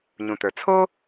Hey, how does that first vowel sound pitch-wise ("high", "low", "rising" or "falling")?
low